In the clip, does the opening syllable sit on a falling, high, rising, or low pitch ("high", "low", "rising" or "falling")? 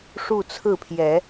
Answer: falling